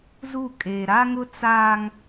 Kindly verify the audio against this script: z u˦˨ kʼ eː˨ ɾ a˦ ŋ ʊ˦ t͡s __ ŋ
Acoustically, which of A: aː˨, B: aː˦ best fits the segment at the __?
B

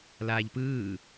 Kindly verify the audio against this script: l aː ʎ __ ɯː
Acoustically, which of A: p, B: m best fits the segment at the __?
A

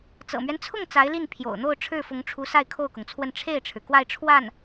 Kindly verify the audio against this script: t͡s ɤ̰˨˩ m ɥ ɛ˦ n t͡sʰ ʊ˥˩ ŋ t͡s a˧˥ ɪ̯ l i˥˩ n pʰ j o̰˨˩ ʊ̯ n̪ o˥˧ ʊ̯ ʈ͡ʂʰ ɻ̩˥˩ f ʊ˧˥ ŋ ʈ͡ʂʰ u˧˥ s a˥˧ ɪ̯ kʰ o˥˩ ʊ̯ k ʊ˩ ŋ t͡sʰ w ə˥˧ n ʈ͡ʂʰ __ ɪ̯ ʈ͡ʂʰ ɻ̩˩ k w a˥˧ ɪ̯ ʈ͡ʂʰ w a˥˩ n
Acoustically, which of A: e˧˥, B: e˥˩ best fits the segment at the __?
B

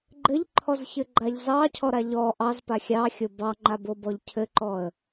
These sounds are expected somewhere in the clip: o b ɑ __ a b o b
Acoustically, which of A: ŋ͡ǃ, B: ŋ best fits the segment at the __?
A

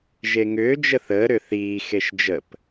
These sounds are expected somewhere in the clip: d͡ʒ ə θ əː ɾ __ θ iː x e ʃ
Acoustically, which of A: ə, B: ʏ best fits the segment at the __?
B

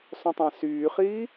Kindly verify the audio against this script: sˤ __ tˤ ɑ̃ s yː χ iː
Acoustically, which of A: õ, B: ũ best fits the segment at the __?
A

